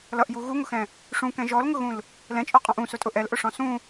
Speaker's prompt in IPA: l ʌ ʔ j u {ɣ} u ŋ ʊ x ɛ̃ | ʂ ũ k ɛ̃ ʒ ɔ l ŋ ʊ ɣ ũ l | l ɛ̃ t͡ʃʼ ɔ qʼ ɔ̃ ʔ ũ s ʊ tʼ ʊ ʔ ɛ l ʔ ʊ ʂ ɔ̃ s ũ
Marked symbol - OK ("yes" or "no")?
yes